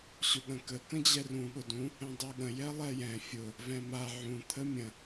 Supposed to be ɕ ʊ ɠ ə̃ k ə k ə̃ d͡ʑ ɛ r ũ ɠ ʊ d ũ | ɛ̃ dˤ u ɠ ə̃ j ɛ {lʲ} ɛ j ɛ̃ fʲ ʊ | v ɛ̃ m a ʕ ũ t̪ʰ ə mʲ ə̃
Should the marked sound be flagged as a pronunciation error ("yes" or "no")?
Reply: yes